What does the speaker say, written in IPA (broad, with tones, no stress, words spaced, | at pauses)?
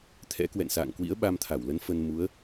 t̪ʰɛ̰˧˥kwɛ̰˧˨n sa̰ː˧˨ŋkwḭ˧˥ə̯ ɓa˧mt̪ʰa˧˩wlə˨˦n fə˧nmu˨˦ə̯